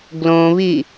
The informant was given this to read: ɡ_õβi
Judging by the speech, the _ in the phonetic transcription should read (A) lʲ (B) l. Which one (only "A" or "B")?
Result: B